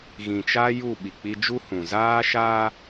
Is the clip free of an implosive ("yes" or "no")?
no